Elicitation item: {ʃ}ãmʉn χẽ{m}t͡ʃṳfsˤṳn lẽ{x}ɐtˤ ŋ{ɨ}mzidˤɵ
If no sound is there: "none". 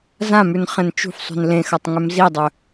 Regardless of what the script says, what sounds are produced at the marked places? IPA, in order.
z, n, x, ʉ

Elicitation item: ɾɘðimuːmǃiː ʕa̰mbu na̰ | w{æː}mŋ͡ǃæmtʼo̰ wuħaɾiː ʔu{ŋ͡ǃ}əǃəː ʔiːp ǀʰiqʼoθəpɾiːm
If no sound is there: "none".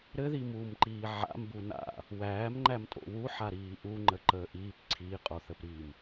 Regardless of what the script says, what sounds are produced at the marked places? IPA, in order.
æː, ŋ͡ǃ

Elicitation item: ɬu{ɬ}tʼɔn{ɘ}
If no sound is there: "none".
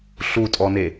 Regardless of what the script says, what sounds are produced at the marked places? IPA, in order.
none, e

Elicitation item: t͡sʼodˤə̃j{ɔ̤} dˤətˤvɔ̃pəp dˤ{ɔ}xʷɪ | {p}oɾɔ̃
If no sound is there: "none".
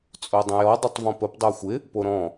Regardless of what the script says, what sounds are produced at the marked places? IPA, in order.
ɔ, o, p

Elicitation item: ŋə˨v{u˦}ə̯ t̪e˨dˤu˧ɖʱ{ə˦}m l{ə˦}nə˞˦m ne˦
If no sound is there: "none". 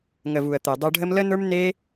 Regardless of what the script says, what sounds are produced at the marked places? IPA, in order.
u˨, ə˦, ə˦

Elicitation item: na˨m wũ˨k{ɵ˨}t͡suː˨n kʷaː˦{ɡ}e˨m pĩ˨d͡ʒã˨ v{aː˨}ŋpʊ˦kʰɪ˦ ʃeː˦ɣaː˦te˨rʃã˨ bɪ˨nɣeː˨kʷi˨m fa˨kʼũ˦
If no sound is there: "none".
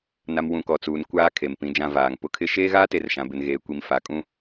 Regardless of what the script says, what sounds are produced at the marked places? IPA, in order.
ɔ˨, kʰ, aː˨

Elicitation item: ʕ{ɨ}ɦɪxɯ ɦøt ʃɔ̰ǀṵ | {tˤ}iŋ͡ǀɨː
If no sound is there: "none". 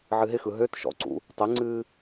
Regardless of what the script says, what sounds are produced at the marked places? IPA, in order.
ɨ, tˤ

